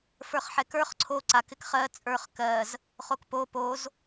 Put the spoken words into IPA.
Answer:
f ə˞ χ ħ ɛ k ə˞ χ ǀʰ o ǀ a k ɪ k χ ɜ t͡sʼ ə˞ χ k ɜ z | χ o k p o p o z

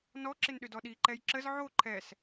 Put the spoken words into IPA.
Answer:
n ɔ ǁ ɪ n ɗ ʏ d ɔ ɗ i ǃ ɛ j ǁ ə z ʕ o ǃʰ ɛ s

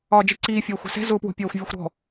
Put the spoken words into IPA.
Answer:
ɒː d͡ʒ i ǀ iː fʲ ɒː xʷ ɛ̤ s ɛ̤ z ʊː p w o̤ pʲ ɒː xʷ vʲ o xʷ ɾ ɔ̤

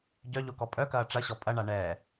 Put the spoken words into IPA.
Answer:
ɟ œ ʎ o k ɔ pʼ œ k ɐː ʈ͡ʂ ɐ ɕ ɔ pʼ ɐ ɳ a ɳ ɛː

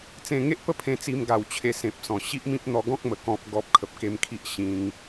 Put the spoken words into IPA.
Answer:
t͡s ẽ˧ ŋ e˦ ʔ p ə˦ pʰ ẽ˧ t͡s i˧ m ɡ a˨˩ w t͡ɕʰ e˧ s ẽ˨ p̚ s ɔ̃˨˩ ɕ i˦ ʔ m ĩ˦ p̚ n̪ ɔ˧ ɡ ɔ̃˦ k̚ m ə˨˩ k ɔ̃˨ p̚ ɡ ɔ˨ p̚ kʰ ə˨ p̚ k e˧ m kʰ i˦ ʔ ɕ ĩ˧ ŋ

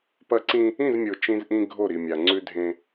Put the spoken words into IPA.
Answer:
p ɐ˦ ǀ ĩ˦ | ĩ˦˨ z mʲ o˨ t͡ʃ ĩ˦ z ʔ ĩ˦ ɡʱ o˦˨ ɾ i˨ mʲ a˨ ŋ͡ǀ ʉ˦ dʱ ẽ˦

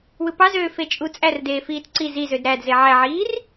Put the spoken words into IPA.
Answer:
w ɯ p ɑ z øː f e t͡ʃʼ u t͡sʼ æ r d eː f iː t ǀ i z i z ø d ɾ æ d z e ʕ æ ʕ iː r

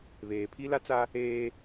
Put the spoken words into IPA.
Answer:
β eː˨ pʰ i˦ l a˦ t͡s a˦ | eː˦

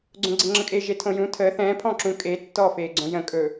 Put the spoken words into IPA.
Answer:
ɡ͡ǀ õ ɡ͡ǀ e ŋ͡ǁ ə̃ kʼ e ʒ e tʰ õ j ũ tʰ əː θ ɛ̃ː pʰ ɔ̃ː ǁ ũ kʼ eː tː ɔː f eː ɡ͡ǀ õ j ə̃ kʼ ɵ

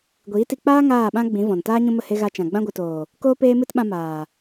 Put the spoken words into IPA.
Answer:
ɡʷ iː˨˦ t i˧ k͡p aː˦ ŋ aː˦˨ ɓ ã˦ ɡ͡b ĩ˨˦ v ɔ̃˨ n t aː˦ ɲ ũ˧ m ə˦˨ h e˧ ɣ a˧ t͡ʃ ã˨ ɡ͡b ã˧ ɡʷ ɨ˨ t oː˨ | k oː˦ p eː˦ m ɨ˦ t ɓ ã˧ m aː˨

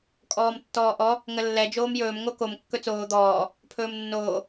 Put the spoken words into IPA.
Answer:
kʼ ɔː m tː ɔː ʔ ɔ | ŋ ə lː ɛ d͡ʒ oː m j ɵː m ŋ o k o m kː ɵ t͡s oː d̪ ɔː | pʰ ɵː m nː oː

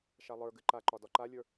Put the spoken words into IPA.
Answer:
ʃ a lˠ ə˞ ɡ ɨ ǃ a ǃ ɒ d ɒ ǃ a lʲ ə˞

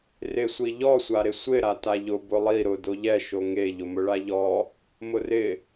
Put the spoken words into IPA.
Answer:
r ɪ sʷ i ʎ ɔ sʷ a ɾ ɪ sʷ ɪ ɾ a t a ʎ ʊ b ʊ lˠ i ɾ ʊ d o ʎ ɛ ʃ o ŋ e ʎ ʊ m ʊ ɭ a ʎ ɔ | m ʊ r ɪ

